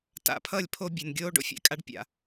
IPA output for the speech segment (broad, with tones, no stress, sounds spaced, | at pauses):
t a̰˨ pʰ ʌ˦˨ lʲ pʰ o˦ bʲ e˨ n ɡʲ oː˦ ɖ o̰˦ fʲ ɛ̰˨ kʼ a˦ ɖ pʲ a̰˨